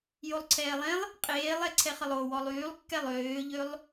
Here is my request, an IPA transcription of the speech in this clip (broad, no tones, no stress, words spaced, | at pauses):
jolˠǀʰɛːlˠẽlˠ | qʼeːlˠɛ ǀʰɛχəlˠo wɔlˠyːlˠkːɛlˠ øːʎølˠ